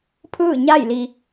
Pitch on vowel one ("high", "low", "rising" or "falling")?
falling